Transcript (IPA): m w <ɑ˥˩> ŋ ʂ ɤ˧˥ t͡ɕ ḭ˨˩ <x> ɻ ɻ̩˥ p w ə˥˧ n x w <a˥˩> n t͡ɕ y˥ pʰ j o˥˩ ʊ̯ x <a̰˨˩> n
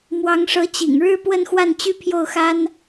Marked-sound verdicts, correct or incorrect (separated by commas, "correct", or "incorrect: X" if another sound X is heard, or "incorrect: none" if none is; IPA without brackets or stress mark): incorrect: ɑ˧˥, incorrect: ŋ, correct, incorrect: a˥